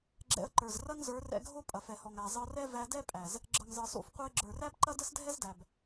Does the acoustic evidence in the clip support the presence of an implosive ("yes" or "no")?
no